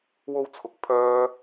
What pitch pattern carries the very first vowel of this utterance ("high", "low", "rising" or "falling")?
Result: high